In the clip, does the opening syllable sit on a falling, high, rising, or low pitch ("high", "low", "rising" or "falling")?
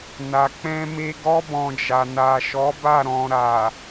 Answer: low